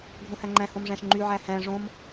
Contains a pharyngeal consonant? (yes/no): yes